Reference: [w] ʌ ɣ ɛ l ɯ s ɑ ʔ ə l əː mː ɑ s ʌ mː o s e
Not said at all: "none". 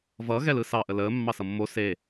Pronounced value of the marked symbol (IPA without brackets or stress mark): v